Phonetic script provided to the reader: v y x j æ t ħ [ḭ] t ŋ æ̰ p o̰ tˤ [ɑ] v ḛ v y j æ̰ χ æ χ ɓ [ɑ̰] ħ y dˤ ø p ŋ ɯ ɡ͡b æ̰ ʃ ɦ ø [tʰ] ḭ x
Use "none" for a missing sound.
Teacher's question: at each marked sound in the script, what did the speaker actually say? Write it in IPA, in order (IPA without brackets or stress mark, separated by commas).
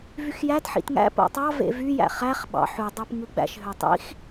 ḭ, ɑ, ɑ̰, tˤ